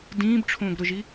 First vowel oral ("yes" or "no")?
no